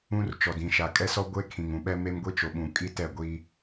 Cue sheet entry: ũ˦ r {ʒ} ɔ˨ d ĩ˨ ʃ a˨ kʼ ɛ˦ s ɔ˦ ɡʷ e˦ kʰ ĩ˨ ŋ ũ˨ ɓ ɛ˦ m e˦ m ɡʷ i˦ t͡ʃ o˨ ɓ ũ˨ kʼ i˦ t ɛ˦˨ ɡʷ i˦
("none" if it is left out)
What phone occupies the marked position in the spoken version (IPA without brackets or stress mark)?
t͡ʃ